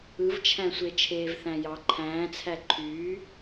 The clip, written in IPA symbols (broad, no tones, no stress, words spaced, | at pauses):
ɯvt͡ʃʰæ̃sʷe t͡ʃʰeːvθæ̃jɑ ǃʰæ̃ːt͡sʰæ ǃʰyː